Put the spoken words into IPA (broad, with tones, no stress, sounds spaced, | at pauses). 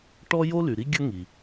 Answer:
ʈ ɔ˥ j o˥ l y˩ ɾ i˥ ɡʲ ə˥ ŋ i˩